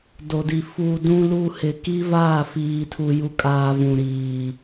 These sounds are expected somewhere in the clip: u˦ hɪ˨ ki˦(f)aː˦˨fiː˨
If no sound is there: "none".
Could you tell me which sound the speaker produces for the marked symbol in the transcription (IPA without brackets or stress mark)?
v